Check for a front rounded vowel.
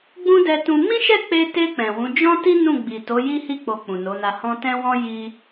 absent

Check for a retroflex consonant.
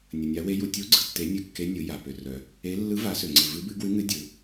absent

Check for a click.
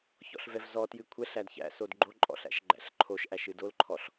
present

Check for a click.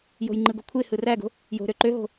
present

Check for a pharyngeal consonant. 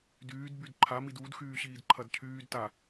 absent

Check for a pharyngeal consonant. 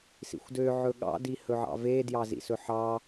present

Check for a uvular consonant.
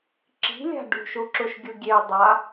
absent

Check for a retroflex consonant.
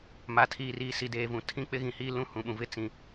absent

